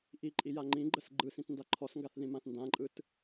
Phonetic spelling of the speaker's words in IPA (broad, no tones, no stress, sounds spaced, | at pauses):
ʔ i ǃʼ i j a ŋ͡ǃ ĩ ɡ͡ǃ ə s ɡ͡ǃ ɯ s ĩ t n d a ǃʰ ɔ s ŋ ɡ a θ ð ĩ m ã θ n d ã ǃʼ ɯ t